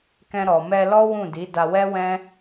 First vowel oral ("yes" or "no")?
no